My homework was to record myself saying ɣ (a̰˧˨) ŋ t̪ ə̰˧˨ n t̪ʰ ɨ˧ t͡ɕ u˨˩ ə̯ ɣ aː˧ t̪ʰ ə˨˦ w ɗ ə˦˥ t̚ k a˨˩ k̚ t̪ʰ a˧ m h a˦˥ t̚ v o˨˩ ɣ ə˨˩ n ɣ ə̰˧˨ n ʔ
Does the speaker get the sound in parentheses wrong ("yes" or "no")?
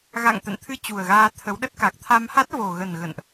no